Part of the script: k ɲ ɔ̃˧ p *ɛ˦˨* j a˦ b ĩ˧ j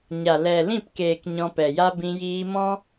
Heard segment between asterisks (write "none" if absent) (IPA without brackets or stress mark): ɛ˨